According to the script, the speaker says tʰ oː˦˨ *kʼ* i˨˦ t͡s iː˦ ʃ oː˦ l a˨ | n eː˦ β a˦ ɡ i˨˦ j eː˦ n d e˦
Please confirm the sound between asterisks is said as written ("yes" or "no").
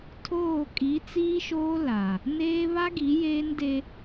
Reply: yes